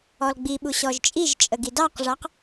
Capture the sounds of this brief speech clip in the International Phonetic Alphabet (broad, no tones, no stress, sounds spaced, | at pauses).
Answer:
ɔ l ɡ͡b i ɓ u ɕ ɔ ʒ t͡ʃʼ i ʒ t͡ʃʼ ə ɡ i d ɑ q ʐ ɑ q